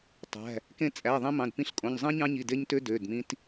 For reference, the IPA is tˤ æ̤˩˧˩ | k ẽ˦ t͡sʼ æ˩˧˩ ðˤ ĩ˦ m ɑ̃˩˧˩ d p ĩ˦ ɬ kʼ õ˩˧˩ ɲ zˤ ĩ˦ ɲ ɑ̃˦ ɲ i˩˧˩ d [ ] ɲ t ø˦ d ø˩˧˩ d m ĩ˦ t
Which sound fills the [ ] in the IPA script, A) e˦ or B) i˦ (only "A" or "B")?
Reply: A